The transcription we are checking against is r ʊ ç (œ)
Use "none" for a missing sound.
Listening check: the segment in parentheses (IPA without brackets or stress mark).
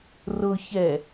ɛ